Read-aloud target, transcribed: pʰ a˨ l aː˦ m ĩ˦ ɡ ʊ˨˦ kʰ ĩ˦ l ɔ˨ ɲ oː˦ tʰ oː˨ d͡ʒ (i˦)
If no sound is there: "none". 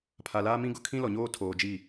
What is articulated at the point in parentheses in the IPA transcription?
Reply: i˦˨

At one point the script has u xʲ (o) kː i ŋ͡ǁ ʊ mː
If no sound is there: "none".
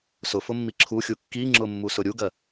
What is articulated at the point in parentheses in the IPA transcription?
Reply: u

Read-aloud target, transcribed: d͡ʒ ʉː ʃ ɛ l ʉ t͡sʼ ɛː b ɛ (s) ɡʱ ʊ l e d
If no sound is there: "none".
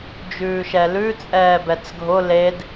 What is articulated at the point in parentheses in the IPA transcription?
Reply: t͡s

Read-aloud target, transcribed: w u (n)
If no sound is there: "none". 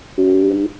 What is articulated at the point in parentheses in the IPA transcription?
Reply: n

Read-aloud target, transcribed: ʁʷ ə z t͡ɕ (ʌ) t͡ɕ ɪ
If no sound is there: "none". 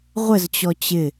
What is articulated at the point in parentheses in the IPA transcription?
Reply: ɔ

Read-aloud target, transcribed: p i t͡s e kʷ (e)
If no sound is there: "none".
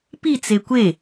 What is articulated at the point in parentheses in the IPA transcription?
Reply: e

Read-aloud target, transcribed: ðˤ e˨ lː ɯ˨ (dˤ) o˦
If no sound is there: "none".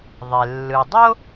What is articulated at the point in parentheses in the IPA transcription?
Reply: dˤ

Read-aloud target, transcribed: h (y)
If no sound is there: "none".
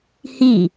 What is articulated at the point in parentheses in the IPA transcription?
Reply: i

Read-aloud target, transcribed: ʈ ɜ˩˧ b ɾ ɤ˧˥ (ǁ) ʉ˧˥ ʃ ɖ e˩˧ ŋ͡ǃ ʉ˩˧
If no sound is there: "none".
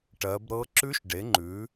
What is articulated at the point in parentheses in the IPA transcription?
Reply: ǁ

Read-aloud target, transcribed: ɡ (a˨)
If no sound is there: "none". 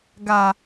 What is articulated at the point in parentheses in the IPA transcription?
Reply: a˨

